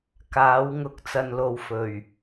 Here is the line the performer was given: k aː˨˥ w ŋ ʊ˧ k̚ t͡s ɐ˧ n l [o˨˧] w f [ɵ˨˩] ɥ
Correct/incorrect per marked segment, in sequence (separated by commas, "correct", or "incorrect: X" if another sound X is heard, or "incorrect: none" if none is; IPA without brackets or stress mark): incorrect: o˧, correct